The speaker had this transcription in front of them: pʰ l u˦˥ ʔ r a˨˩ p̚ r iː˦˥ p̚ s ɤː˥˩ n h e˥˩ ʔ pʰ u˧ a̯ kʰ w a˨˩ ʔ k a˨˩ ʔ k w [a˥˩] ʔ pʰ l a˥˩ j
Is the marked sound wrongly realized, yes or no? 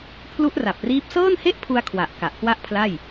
no